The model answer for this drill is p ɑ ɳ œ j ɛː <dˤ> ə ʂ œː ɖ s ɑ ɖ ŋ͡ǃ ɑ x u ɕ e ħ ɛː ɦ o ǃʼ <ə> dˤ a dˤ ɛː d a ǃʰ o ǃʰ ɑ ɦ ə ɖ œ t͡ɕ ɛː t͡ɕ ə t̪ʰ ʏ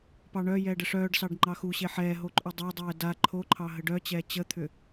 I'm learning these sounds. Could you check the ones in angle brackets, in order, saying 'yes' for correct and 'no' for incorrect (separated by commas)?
no, no